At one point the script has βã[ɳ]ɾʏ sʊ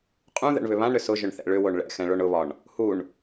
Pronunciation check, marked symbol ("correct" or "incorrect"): correct